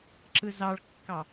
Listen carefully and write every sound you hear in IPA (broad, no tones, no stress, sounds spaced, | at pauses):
ǁ ɯ z ɑ ɭ kː ɑ